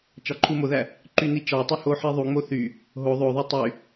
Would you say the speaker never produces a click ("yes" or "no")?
no